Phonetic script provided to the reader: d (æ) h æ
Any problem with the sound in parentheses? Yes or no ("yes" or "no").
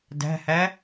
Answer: yes